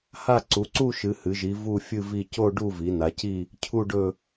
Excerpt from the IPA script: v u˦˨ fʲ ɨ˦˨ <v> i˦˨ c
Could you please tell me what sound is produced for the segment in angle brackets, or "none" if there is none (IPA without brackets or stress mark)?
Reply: v